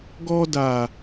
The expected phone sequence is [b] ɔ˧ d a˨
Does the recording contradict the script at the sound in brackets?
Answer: yes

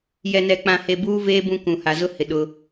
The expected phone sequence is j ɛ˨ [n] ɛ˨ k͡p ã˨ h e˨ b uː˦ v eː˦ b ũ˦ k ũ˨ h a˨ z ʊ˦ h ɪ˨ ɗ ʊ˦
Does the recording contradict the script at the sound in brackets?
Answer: no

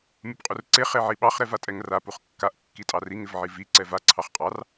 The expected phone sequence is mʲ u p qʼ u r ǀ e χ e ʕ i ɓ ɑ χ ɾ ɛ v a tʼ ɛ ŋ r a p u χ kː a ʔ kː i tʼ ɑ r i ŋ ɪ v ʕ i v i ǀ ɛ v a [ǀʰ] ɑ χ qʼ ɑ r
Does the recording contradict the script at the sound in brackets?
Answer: no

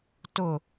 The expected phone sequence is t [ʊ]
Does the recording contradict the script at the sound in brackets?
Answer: no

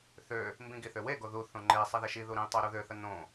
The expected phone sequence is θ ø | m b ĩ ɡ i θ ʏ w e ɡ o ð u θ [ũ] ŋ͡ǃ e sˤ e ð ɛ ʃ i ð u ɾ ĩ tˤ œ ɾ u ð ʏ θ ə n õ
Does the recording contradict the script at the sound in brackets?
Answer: yes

